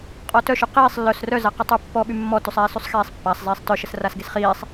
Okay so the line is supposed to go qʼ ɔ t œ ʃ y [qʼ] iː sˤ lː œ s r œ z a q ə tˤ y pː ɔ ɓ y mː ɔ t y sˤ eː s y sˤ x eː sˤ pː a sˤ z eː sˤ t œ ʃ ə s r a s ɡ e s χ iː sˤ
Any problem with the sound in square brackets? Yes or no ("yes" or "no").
yes